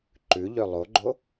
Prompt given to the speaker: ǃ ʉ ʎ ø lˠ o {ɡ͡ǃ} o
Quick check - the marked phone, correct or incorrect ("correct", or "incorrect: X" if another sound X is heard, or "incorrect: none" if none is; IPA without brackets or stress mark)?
correct